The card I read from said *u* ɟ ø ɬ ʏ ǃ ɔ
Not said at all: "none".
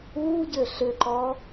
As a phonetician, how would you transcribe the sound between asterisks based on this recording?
uː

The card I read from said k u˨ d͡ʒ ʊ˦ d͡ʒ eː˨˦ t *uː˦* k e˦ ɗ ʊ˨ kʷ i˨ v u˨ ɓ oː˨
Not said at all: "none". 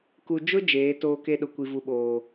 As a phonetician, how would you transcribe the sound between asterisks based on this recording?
oː˦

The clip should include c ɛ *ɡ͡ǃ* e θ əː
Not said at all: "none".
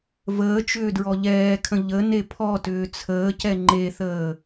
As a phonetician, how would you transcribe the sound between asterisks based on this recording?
ŋ͡ǃ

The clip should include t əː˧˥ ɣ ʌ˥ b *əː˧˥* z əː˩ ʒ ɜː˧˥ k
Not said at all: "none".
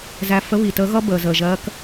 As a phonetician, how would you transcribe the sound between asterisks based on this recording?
əː˩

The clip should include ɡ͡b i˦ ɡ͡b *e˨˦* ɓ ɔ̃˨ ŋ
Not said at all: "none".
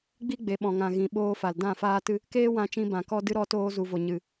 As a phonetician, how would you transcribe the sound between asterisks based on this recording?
e˨˦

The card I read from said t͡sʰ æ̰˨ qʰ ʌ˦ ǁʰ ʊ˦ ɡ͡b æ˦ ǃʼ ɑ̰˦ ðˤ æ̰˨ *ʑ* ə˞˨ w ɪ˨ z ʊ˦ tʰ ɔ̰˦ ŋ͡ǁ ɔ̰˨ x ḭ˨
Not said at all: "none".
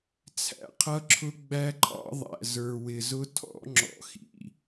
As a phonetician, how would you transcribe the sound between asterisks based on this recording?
z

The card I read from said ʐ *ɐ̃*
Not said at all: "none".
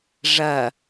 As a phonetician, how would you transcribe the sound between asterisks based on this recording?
ɐ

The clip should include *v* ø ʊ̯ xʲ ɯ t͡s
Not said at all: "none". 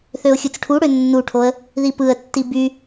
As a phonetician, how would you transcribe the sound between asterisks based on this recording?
θ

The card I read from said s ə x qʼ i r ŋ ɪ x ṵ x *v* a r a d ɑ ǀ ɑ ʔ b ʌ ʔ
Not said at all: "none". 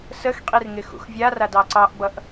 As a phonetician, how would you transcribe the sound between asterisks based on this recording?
vʲ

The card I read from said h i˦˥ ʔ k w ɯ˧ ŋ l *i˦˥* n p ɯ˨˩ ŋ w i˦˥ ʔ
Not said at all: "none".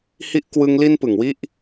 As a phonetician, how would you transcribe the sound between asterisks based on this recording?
i˧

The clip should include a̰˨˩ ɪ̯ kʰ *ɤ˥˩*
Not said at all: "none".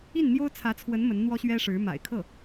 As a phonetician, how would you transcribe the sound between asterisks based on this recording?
ɤ˥˩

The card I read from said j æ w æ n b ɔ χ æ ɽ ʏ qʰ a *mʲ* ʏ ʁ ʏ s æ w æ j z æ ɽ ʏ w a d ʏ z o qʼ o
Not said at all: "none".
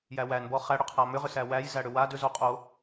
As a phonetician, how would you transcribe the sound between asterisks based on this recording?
m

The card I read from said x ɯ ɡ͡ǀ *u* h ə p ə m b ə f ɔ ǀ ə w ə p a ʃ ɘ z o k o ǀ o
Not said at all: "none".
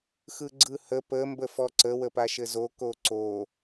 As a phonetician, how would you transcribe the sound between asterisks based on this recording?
ɯ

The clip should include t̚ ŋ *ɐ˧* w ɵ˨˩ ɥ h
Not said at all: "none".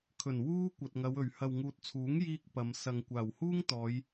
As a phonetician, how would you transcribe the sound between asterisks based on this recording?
ɐ˨˧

